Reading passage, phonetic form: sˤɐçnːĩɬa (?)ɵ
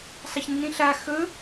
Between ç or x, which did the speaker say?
x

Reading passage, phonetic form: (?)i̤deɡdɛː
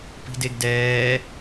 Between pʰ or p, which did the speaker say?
p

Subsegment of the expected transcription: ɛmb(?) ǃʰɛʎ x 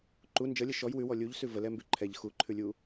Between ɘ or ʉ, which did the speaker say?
ʉ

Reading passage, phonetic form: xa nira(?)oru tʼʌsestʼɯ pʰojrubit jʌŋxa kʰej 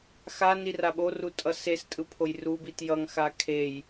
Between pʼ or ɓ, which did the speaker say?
ɓ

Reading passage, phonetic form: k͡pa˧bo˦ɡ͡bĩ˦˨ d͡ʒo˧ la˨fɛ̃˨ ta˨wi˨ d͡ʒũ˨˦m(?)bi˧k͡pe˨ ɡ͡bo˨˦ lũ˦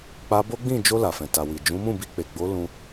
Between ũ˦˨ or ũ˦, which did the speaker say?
ũ˦˨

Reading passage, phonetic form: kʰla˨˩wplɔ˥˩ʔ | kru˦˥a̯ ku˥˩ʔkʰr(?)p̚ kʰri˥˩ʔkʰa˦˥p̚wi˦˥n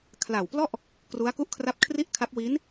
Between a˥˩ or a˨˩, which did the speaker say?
a˥˩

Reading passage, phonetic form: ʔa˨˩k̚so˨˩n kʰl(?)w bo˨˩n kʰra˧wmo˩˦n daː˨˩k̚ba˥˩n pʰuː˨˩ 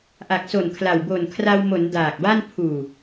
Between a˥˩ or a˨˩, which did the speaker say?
a˨˩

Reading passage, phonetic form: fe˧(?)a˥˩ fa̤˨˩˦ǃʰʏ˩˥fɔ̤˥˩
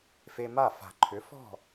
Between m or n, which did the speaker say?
m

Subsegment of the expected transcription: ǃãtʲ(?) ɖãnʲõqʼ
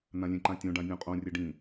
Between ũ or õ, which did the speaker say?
õ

